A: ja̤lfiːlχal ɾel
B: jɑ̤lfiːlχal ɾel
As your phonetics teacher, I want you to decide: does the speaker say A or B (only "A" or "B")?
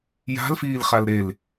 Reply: A